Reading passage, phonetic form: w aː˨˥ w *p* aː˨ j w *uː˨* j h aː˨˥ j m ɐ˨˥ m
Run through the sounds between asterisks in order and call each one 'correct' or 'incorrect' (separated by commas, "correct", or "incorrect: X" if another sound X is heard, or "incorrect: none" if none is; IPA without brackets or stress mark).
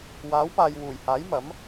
correct, incorrect: uː˨˩